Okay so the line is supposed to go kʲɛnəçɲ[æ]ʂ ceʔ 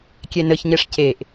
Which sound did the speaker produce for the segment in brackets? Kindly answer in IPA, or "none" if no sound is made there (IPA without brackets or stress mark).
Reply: ɛ